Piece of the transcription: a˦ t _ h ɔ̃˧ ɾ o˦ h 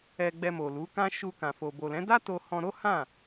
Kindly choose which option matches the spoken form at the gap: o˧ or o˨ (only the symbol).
o˧